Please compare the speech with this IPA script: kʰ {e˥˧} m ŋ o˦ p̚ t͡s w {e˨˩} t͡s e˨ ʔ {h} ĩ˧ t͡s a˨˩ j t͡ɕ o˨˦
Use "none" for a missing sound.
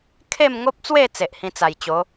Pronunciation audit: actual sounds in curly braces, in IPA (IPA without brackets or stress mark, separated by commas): e˥˧, e˥˧, h